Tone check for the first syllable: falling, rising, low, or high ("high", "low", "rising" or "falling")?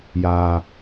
low